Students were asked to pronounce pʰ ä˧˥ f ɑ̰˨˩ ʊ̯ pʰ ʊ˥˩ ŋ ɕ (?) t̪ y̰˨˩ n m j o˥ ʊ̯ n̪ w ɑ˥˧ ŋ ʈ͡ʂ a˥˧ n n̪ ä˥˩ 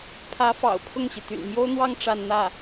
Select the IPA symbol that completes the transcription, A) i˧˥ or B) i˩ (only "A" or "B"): B